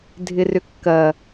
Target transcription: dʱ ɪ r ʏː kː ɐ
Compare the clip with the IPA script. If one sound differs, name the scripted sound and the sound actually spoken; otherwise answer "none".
ʏː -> ʏ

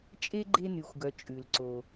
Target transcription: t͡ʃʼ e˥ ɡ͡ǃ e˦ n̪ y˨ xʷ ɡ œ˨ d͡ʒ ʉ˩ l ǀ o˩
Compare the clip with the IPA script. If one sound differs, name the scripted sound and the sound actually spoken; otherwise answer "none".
d͡ʒ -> t͡ʃʼ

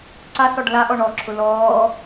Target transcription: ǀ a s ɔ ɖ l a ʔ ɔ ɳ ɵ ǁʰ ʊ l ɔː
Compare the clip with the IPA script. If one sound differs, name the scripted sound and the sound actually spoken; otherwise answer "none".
ɵ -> ɔ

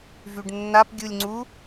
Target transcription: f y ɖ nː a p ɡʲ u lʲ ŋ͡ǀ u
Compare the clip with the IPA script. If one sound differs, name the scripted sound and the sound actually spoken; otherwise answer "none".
f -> v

